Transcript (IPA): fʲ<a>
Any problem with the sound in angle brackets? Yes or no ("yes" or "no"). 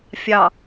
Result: yes